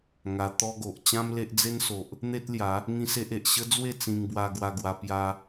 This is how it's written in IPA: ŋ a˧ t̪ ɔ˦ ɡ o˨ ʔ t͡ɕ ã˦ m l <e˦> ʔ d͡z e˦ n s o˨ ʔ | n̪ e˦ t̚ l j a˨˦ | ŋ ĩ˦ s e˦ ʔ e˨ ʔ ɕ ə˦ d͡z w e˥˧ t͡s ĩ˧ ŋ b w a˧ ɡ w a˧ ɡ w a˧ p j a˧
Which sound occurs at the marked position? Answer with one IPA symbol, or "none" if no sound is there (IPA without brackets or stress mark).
e˦